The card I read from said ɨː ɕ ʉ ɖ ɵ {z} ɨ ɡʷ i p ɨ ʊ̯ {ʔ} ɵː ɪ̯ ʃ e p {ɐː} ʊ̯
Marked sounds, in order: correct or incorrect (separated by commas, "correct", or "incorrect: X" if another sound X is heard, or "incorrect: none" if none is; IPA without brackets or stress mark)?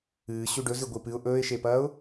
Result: correct, correct, correct